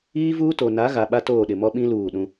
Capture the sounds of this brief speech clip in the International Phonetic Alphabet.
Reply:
iː˦ v uː˦ t o˨ n a˨˦ ɣ a˨ ɓ a˦ t oː˦˨ ɗ ɪ˨ m ɔ˦ ɓ ĩ˦ l uː˦˨ ɗ ũ˦

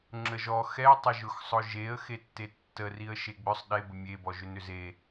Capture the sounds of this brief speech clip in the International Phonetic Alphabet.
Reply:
ŋ͡ǁ ə ʒ ɔ x ɛ tˤ ə ʒ ʊ x sˤ ʊ ʒ e ə̯ x e tː e tː ə r i ə̯ ʃ e ɡ͡b ʏ sˤ ɗ e b ə mʲ e b ɔ ʒ ʏ n ʏ z e

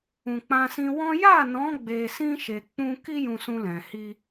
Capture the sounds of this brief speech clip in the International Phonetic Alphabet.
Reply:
ũ˨ k͡p ã˧ s ĩ˧ w ɔ̃˦ j a˦˨ n ɔ̃˨˦ ɡ͡b e˧ s ĩ˦ ʃ e˧ k͡p ũ˧ k i˦ j ũ˧ s ũ˧ l ɛ̃˨ h i˧

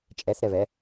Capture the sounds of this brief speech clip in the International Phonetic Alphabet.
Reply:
t͡ʃʼ ɛ θ ɾ ɛ β ɛ

